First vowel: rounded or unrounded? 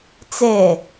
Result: unrounded